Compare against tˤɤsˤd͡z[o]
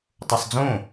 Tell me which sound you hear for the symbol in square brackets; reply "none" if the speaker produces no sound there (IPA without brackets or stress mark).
õ